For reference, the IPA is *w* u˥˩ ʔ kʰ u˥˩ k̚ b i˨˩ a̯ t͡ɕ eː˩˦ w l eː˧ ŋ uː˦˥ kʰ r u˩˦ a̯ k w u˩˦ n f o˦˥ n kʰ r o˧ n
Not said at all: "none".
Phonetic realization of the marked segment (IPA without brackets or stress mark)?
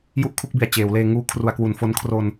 j